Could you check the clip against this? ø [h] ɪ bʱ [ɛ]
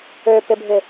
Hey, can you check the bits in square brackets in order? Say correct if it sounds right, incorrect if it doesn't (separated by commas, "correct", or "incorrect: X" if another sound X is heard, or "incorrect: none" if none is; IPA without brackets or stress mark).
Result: incorrect: p, incorrect: ɪ